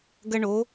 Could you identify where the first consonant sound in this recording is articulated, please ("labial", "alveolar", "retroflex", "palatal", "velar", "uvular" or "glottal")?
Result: velar